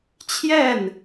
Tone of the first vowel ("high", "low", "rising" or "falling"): falling